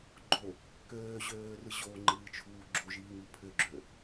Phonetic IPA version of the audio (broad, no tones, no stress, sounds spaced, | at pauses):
ɡ͡ǃ o | k øː ʑ øː r ɯ ʑ o ŋ͡ǃ ɨː t͡ʃʰ uː ɡ͡ǁ o ʒ iː ŋ ɨ pʰ ʏ ɡ͡ǁ ø